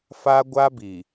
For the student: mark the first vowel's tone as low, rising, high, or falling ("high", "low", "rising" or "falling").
high